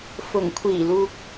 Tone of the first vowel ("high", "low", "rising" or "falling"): low